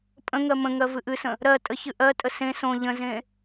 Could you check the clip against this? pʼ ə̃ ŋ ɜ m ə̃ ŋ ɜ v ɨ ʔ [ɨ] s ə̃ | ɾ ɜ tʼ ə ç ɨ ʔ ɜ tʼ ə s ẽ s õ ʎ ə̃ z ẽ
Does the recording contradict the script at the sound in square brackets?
no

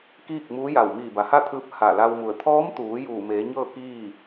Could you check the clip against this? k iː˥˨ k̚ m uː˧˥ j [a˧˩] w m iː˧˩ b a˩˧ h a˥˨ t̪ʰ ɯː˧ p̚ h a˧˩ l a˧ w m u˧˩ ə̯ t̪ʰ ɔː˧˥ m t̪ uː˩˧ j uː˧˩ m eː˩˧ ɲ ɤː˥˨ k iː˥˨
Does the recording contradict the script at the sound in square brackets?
no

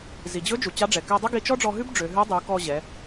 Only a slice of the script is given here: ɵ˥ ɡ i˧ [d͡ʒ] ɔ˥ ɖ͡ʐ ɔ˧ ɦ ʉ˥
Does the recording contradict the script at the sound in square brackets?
yes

